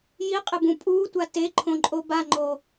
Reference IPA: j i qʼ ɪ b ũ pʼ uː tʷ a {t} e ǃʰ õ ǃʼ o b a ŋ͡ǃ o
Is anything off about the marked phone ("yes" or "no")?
no